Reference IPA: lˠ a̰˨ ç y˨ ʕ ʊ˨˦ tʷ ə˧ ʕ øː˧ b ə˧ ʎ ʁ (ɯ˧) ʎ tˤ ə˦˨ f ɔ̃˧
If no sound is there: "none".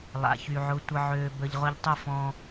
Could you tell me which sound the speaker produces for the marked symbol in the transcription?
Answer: ʊ˧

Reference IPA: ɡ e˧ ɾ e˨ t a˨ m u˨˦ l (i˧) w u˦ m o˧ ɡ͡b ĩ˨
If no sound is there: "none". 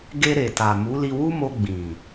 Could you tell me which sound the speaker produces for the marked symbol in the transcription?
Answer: i˧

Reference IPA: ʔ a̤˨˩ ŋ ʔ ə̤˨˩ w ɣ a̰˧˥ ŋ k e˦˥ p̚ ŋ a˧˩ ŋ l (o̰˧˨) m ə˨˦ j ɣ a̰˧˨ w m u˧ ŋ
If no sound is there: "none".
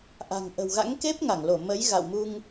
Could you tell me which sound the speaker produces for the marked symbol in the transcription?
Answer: o˧˩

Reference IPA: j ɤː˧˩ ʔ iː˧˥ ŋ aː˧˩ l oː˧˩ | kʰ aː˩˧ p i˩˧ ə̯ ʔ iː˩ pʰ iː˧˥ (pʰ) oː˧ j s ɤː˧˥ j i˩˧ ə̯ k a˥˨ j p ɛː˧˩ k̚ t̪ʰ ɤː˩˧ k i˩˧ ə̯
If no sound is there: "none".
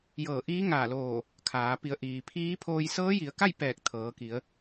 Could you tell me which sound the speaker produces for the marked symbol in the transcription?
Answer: pʰ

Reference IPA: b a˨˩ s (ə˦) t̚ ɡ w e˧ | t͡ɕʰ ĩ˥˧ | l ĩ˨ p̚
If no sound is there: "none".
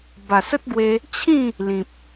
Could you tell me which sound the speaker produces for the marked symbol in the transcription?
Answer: ə˦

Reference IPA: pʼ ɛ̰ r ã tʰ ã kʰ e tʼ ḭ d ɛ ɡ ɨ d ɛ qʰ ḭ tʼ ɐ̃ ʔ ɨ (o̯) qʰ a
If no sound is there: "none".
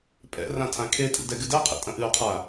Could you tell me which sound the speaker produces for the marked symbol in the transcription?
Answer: o̯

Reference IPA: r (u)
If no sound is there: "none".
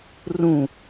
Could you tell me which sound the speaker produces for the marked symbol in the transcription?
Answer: ũ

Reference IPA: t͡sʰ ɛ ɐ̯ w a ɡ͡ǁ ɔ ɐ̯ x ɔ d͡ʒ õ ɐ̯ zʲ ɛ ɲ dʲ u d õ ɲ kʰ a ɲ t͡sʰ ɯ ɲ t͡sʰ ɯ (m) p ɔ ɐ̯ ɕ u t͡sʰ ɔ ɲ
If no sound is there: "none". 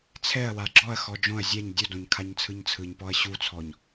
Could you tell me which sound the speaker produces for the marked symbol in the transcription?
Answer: ɲ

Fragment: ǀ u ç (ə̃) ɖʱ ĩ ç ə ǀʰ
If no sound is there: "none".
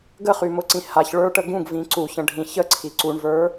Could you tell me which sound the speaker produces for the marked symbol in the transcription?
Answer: ə̃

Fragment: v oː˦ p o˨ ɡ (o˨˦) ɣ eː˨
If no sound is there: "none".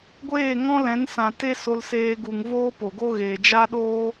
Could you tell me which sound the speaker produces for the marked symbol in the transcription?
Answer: o˦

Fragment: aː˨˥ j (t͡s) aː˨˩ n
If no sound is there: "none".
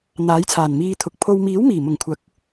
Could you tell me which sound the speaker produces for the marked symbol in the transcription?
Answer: t͡sʰ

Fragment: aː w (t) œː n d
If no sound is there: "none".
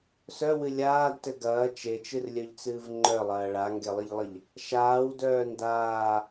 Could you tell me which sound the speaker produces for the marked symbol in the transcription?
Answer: d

